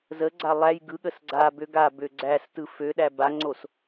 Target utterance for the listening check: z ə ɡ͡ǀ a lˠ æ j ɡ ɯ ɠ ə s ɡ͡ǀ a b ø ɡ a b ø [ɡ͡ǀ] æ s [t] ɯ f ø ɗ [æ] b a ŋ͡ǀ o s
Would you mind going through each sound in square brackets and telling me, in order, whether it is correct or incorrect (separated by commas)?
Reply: correct, correct, correct